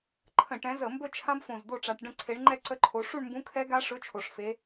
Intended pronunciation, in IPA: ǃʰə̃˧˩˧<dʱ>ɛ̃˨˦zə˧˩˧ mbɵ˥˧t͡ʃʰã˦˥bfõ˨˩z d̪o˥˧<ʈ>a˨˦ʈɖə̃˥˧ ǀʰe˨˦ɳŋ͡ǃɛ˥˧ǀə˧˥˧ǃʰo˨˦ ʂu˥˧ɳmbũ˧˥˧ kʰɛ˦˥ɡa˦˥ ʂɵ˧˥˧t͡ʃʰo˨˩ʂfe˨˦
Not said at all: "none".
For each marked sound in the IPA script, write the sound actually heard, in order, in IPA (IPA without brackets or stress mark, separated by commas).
ʈ, ʈ͡ʂ